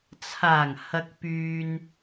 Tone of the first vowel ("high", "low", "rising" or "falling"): low